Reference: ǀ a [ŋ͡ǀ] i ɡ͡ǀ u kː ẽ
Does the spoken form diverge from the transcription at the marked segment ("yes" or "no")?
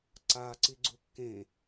yes